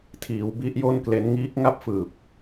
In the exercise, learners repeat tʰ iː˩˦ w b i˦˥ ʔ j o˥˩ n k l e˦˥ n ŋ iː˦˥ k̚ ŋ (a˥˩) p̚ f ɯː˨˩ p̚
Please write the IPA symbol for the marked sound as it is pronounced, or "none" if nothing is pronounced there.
a˥˩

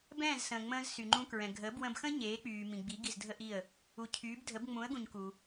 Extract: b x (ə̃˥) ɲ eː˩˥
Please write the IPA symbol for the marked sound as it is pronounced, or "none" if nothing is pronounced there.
ə̃˥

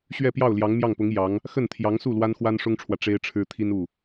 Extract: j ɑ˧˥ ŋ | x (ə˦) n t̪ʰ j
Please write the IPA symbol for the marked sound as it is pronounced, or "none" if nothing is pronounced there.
ə˥˩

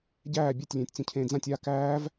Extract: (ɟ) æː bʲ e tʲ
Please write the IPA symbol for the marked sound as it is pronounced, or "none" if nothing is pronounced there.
ɟ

